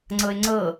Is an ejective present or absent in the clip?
absent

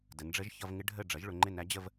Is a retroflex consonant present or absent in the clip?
present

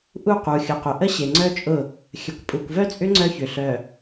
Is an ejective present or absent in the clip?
present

